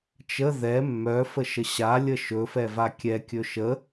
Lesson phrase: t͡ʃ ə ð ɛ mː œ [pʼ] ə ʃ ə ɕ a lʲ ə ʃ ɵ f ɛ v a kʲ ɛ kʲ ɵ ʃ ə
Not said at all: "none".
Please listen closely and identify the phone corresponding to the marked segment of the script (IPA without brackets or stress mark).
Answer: f